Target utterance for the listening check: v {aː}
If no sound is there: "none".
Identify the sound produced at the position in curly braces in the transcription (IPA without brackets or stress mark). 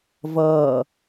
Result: ʌː